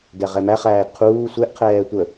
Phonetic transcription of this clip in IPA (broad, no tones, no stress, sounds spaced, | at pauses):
d ɛ ʁ ɛ m æ χ æː d qʰ uː sʷ ɛ ʔ qʰ ɛː tʷ ə